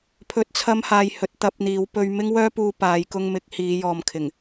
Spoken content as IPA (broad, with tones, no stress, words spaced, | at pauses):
pʰɵ˨˥t̚t͡sʰɐ˧mhaː˨j hɵ˨t̚t̪ɐ˧p̚n̪iː˨˧w pɵ˧ɥ mɪ˥ŋwœː˥puː˧ paː˨˧j kʊ˧ŋmɪ˨˥k̚hiː˨˧ jɔː˨mkʰɪ˨˩ŋ